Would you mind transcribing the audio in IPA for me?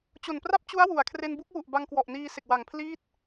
t͡ɕ o˨˩ n p r a˥˩ p̚ t͡ɕ u˦˥ a̯ w u˩˦ a̯ kʰ r e˧ n b u˦˥ k̚ w u˨˩ ʔ b a˧ ŋ k w ɔ˨˩ ʔ n iː˧ s e˨˩ k̚ w a˨˩ ŋ pʰ l iː˥˩ t̚

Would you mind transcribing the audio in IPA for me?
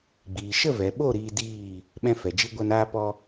ɡ͡b iː˨ ʃ ə˦˨ v ɛ˨ ɓ o˦˨ ɾ iː˧ d iː˦˨ | ɓ ɛ̃˧ f ɛ˨ d͡ʒ i˧ ɡʷ a˧ n aː˧ p ɔ˧

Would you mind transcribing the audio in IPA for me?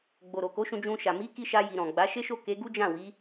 ɡ͡b o˨ ɾ o˨ k o˨˦ ʃ ũ˧ d͡ʒ ũ˧ ʃ a˨ m i˨˦ k i˧ ʃ a˧ j i˨ ɾ ɔ̃˨ ɡ͡b a˨˦ ʃ e˦ ʃ o˦˨ k e˨˦ ɡ u˦ d͡ʒ ã˦˨ w i˨˦

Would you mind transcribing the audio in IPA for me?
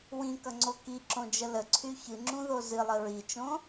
w ĩ k ʌ ŋ͡ǀ o k i ǁ õ d͡ʒ ə l ə ǀʰ y ç ɨ ŋ͡ǁ ũ ð o z ɨ lˠ ə ɹ i t͡ʃ õ

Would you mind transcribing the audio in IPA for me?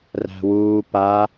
r æ̤ w uː p a

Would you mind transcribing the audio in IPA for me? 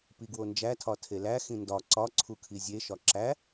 p i ɡ w o n d͡ʒ æ tʰ ɒ tʰ e l æ x ĩ n d ɒ ǀ ɒ ǀʰ u kʰ i zʲ e ʃ ɒ ǁ æ

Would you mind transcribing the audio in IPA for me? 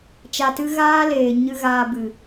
t͡ʃ a˧ t ɨ˦ ɣ aː˦ l eː˨ ɲ ɨ˧ ɣ aː˧ b ɨ˨

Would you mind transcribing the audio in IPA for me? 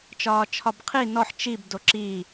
t͡ʃ ɒː t͡ʃʰ ɒ b qʰ i n ɔ ħ t͡ʃ i b d o ǁ i

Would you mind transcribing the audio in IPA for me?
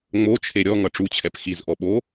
ŋ͡m o t͡ʃʰ e ɾʲ ɔ ŋ ʌ ʈ͡ʂ u t͡ɕʰ ɛ p x i z ʔ ɔ ɓ o

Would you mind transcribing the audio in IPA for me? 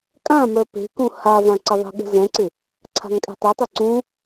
kʼ ã m œ p e̤ k ũ h a v ã ǀ ɪ ðˤ ə̤ ɠ ə̤ z ɛ̃ ǀ ɪ | ǀʰ a̤ ŋ kʼ ɛ̤ tˤ ɛ tˤ ɪ ǀ ũ

